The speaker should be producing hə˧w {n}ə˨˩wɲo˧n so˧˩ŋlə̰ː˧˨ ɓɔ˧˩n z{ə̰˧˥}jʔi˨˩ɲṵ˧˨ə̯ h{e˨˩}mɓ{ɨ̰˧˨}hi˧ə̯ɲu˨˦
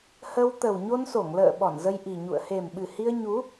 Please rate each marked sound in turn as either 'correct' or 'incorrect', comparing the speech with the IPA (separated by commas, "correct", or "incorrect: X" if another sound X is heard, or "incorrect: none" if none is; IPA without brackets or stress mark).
incorrect: t̪, incorrect: ə˧, correct, incorrect: ɨ˨˩